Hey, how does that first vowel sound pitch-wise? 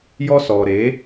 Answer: high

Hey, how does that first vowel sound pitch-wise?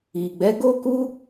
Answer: low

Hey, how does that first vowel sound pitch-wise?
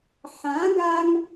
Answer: rising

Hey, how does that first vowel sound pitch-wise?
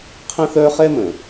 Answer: high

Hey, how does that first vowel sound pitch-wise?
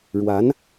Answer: rising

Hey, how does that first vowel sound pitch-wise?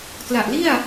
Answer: low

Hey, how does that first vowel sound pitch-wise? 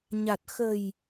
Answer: low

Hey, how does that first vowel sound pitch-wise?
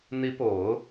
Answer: rising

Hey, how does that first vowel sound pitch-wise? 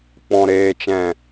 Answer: low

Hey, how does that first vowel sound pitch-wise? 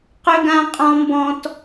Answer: high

